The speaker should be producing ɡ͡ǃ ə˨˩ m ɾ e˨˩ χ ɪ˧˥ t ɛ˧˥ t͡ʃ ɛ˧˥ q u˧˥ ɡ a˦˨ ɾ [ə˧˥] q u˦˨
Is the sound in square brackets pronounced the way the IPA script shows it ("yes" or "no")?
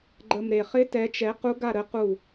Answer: yes